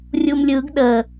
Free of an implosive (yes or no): no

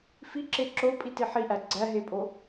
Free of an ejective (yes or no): no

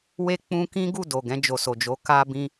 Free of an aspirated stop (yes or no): yes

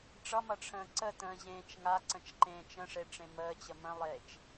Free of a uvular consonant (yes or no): yes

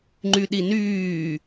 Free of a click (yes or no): no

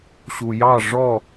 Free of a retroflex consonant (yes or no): no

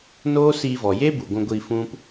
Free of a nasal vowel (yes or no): no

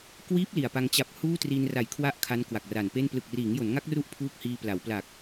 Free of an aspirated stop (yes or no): no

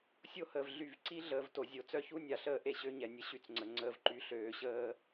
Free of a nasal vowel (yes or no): yes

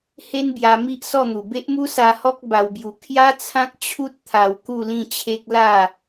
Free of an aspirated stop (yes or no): no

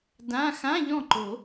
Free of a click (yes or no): no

